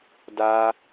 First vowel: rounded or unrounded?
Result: unrounded